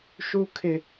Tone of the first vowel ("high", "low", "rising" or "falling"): high